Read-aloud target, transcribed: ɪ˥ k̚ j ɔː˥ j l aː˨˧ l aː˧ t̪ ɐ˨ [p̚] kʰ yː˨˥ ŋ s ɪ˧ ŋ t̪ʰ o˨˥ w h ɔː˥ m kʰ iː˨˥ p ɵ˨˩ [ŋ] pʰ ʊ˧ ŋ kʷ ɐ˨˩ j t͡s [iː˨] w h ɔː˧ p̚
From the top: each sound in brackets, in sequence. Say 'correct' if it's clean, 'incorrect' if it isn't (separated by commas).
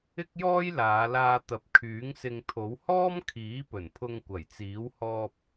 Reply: correct, incorrect, incorrect